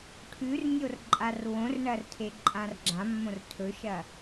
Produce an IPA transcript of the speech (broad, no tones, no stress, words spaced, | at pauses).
ʈʰʉrnʲor ǃʼarwõrɳɐr tʰeǃʼãrɡ͡ǁãmːõr tʰɵʃɐ